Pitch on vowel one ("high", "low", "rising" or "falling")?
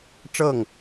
falling